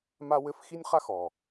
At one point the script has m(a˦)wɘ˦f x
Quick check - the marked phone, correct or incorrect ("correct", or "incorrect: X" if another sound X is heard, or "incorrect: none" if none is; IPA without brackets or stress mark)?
correct